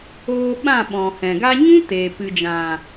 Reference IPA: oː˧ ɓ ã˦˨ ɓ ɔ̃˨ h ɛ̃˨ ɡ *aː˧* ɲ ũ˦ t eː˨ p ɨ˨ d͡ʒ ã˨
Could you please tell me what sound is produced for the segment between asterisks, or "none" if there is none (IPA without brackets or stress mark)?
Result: a˧